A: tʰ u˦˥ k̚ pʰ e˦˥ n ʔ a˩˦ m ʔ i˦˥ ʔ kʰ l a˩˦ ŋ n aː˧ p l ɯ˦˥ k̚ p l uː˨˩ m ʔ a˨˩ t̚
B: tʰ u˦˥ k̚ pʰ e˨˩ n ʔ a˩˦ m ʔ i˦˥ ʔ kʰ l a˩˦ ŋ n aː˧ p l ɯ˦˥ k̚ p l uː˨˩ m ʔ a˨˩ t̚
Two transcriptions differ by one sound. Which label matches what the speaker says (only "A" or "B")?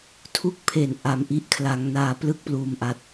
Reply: B